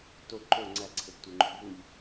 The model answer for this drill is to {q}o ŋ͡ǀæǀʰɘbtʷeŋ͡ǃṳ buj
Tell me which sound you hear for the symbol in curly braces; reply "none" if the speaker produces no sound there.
ǃ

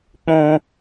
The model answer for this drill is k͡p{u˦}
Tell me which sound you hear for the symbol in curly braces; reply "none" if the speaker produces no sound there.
ũ˦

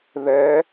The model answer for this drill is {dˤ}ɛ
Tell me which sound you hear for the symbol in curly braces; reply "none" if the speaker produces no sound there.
ð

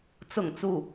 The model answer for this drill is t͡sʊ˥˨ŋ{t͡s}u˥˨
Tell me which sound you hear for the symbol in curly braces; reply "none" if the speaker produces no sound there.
t͡s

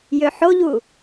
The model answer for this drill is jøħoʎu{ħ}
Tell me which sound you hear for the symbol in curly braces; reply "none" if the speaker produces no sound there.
none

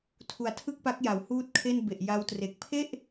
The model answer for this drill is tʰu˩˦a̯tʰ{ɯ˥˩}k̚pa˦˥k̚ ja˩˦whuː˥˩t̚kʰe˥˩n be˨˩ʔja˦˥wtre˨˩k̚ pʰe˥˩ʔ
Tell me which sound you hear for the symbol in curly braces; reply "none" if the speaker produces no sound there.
ɯ˥˩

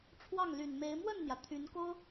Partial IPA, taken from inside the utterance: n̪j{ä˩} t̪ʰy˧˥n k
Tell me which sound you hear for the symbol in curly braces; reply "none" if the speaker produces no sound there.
ä˩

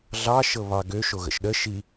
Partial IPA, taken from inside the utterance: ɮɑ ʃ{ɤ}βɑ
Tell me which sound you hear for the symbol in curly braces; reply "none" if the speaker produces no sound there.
ɤ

